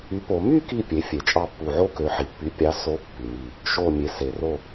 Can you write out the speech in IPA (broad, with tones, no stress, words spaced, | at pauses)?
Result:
y˩˥po˩˧ my˥˨ki˧˩ pʲe˩˥fʲe˩˧t͡ʃʼɑ˥˨pːu˧˩ ʕo˥˨kø˩˧ħi˩pːy˩˥ pʲɑ˩˥ so˩˥ pːy˩mi˧˩ | ʃo˧˩ mʲe˩˧se˩ro˥˨